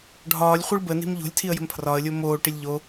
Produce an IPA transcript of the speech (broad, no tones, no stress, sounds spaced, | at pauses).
ɖʱ ɒː lʲ χʷ i ɭ b ə n i̤ m ʎ o̤ lʲ tʰ i ə̯ j ə̤ m pʰ r ɒ ə̯ lʲ o m oː ʈ i lʲ ʎ o